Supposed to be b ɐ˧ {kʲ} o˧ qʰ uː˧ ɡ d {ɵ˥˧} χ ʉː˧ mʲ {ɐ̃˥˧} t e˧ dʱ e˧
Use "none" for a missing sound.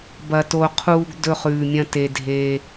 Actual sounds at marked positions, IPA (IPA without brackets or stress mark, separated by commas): t, ɵ˥˧, ɐ̃˥˧